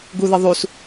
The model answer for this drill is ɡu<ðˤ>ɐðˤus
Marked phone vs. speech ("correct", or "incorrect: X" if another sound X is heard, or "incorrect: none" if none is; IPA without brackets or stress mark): incorrect: ð